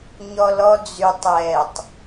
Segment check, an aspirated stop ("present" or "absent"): absent